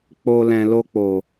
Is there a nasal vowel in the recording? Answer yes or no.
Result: yes